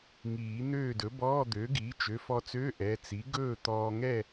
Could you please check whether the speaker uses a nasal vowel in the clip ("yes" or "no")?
no